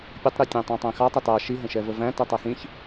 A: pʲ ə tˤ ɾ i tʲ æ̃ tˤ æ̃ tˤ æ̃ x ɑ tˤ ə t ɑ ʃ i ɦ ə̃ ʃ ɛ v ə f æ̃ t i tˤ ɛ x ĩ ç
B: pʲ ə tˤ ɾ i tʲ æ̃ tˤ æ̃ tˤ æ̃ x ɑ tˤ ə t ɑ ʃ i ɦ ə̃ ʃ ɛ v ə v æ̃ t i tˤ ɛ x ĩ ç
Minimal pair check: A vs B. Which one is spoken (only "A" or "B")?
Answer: B